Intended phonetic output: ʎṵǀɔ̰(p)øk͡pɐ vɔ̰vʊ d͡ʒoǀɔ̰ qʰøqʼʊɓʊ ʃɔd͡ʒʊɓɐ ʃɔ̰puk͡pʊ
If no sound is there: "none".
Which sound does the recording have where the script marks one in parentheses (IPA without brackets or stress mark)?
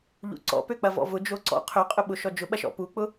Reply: p